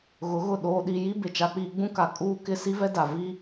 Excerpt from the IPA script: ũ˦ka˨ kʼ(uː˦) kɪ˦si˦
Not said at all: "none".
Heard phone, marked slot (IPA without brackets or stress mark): uː˦